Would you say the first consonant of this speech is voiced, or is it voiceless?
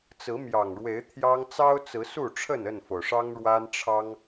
voiceless